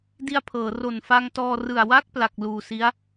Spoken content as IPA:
d i˧ a̯ pʰ ɤː˩˦ r o˨˩ n f a˧ ŋ t ɔː˧ r ɯ˨˩ a̯ w a˥˩ k̚ p l a˨˩ k̚ l uː˨˩ s i˦˥ a̯

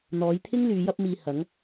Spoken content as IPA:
n̪ ɔː˨˧ j t̪ʰ ɪ˥ ŋ l yː˨˧ j ɐ˥ p̚ m iː˧ h ɐ˨˥ ŋ

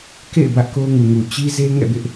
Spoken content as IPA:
k ḛ˦˨ ɪ̯ b ä˦ ʔ k o˦ ʊ̯ ŋ u˨ ŋ u˨ t͡ɕ i˦ z e˦ ŋ ɛ̰˦˨ b ɪ˦ ʔ

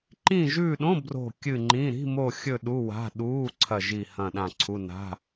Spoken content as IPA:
ǃ ĩ˦˨ ʒ ʉː˦˨ ɗ õ˧˥˧ b r o̤˦˨ kʲ ɨ˦˨ ŋ͡ǃ ĩ˧˥˧ ɾ i̤˧˥˧ m o˦˨ xʲ ɵ˦˨ ɗ u˧˥˧ w a̤˧˥˧ ɗ uː˧˥˧ ǀʰ ɐ˦˨ ʒ i˦˨ h ɐ̃˦˨ ɗ ã˦˨ ǀʰ u˧˥˧ n a̤˧˥˧

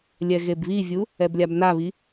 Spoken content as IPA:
lʲ ɛ ɣ e b β i vʲ u | ɛ b lʲ a b n a β i

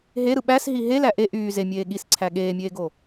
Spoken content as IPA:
ɦ e ɾ ɯ ɓ æ s ɦ i ɦ e l æ ʔ e ʔ yː z e mʲ eː ɠ i s ǀʰ æ ɠ eː mʲ eː ɡ o

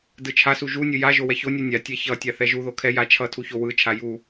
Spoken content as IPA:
d ɯ t͡ʃʰ a s u ʒ u nʲ ɯ j a ʒ o w ɛ ç o nʲ u nʲ a tʲ ɛ ç ʌ tʲ a θ ɛ ʒ u ð o kʰ ɛ j a t͡ʃʰ ʌ tʰ u ç o w ɯ t͡ʃʰ a j u

